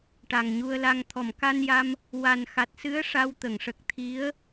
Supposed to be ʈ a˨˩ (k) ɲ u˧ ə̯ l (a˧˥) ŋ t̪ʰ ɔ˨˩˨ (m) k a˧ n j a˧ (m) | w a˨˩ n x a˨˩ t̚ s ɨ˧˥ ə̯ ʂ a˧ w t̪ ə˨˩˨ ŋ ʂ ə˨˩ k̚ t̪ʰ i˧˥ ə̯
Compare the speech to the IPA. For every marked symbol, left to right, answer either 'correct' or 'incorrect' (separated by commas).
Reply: incorrect, incorrect, correct, correct